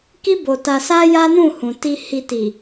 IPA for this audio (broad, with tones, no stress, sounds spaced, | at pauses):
k i˦ b o˧ t a˧ s a˦ j a˦ n ũ˦˨ h ũ˨ t i˧ h i˧ t i˨